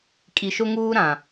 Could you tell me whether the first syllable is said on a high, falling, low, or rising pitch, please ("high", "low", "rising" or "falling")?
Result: low